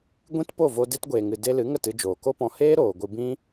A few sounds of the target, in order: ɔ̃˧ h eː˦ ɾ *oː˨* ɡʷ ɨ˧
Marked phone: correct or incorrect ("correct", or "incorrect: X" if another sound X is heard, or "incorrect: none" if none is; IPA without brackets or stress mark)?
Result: correct